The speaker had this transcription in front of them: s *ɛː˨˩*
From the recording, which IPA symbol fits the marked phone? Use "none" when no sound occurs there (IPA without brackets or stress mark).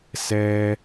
ɛː˥